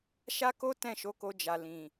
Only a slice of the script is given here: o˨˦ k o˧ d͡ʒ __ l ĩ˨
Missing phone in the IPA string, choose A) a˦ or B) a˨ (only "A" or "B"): B